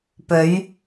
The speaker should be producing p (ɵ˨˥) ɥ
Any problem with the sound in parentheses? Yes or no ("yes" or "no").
yes